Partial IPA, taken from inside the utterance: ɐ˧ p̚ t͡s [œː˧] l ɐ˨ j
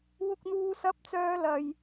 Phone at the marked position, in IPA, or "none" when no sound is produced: œː˧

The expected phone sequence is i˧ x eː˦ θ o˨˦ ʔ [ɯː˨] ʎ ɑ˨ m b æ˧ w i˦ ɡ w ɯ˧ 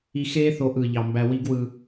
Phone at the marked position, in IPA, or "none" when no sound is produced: ɯː˨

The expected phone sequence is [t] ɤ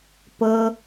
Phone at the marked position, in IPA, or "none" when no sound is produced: p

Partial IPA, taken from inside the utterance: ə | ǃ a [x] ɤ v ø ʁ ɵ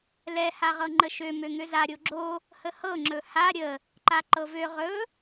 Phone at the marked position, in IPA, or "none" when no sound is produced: ǃ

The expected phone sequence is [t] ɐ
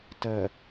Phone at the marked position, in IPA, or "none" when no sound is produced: t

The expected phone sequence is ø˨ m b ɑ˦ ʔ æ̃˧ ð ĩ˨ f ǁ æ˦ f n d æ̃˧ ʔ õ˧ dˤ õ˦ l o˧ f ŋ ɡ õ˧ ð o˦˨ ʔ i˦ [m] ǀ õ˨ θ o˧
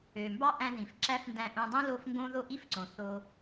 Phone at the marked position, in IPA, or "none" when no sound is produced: f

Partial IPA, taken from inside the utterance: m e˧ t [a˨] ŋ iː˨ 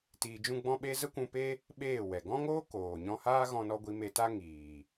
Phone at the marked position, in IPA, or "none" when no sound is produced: a˦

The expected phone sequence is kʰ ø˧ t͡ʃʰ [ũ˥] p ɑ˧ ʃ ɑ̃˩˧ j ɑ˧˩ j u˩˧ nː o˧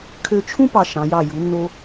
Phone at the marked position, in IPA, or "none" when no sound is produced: ũ˥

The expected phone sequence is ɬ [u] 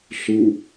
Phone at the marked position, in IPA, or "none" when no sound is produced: u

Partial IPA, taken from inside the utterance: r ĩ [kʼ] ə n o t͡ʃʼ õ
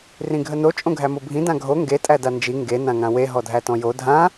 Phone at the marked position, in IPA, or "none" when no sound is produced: ɡʱ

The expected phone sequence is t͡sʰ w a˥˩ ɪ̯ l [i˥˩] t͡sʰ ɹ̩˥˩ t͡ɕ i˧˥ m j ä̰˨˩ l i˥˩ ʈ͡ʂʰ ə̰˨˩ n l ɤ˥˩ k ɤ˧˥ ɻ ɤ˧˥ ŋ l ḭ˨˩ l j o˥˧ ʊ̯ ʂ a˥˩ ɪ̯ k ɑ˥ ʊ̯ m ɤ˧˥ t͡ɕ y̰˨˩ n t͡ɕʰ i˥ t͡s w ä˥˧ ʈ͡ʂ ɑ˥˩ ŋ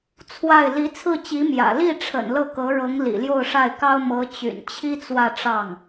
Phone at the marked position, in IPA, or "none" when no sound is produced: i˧˥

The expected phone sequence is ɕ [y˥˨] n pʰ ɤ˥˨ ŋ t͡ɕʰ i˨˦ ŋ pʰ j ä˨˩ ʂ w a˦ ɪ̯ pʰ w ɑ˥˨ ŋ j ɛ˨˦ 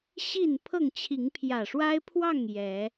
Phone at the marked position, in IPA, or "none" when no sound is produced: i˥˨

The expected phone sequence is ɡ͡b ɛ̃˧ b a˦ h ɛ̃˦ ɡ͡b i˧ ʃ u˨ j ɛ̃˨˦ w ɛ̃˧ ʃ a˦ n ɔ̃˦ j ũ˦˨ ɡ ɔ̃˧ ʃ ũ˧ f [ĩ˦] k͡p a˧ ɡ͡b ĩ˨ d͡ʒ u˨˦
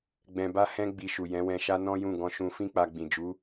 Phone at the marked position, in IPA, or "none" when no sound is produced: ĩ˦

